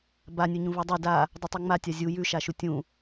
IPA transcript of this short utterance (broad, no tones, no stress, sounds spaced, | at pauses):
b a nʲ u ɲ ũ v ʉ dˤ o d a | dˤ ə tˤ ʉ ŋ͡m a tʲ a zʲ u j ʉ ʃ a ʃ u tʲ ũ